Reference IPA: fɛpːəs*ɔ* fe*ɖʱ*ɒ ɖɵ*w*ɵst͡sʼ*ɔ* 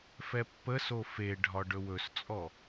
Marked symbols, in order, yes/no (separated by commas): no, yes, yes, yes